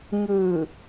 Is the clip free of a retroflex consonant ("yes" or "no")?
yes